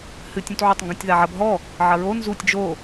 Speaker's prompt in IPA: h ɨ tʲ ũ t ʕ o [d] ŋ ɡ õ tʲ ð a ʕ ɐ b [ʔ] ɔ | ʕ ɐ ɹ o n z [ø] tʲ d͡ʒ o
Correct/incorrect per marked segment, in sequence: incorrect: tˤ, incorrect: ɦ, incorrect: u

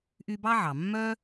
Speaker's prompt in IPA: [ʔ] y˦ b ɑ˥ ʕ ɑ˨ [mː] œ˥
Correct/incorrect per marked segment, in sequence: correct, correct

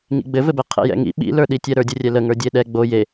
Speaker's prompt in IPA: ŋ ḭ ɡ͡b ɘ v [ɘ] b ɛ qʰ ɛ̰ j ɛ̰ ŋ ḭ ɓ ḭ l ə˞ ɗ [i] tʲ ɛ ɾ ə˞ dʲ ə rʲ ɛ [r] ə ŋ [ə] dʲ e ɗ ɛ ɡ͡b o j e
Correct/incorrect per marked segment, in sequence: correct, correct, incorrect: l, incorrect: ə˞

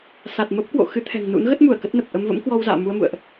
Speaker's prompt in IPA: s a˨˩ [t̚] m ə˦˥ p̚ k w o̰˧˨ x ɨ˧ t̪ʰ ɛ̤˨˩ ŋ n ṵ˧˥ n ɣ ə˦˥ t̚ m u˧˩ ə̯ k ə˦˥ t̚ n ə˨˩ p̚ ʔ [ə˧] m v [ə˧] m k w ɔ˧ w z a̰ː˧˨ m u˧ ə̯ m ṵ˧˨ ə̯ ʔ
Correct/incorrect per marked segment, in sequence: correct, correct, incorrect: ə̰˧˥

